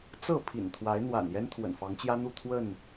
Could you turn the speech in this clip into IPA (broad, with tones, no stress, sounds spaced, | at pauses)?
t͡s ɤ˥˨ pʰ ḭ˨˩ n t̪ʰ w a˨˦ ɪ̯ n̪ w a̰˨˩ n j ɛ˦ n t̪ʰ w ə̰˨˩ n f ɑ˨˦ ŋ t͡ɕ j ä˦ n̪ u˥˨ t̪ʰ w ə˥˨ n